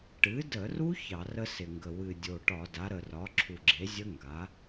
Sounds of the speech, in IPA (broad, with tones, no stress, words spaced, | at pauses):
ʈɨ˩˥də˧˩˧ru˦˥ çɑ˧˩˧rə˦˥sɪ˨˩ŋɡə˨˩ wɨ˨˩dʲo˨˩ʈɒ˧˩˧da˩˥ ɾə˨˩rɒ˩˥ ǁʰu˨˩ɡ͡ǁe˩˥zʲə˦˥ ŋɡa˩˥